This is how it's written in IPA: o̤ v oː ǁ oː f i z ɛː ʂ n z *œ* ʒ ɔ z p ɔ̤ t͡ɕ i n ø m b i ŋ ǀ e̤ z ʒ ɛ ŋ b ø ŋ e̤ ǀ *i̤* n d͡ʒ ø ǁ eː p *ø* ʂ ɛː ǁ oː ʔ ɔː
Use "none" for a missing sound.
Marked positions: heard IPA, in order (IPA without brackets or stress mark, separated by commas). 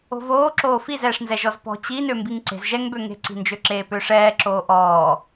ɛ, i̤, ø